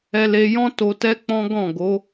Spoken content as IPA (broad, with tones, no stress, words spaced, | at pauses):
ɛ˧le˧ jɔ̃˦ to˧tɛ˦k͡pɔ̃˦ ɡɔ̃˦˨ɡo˨˦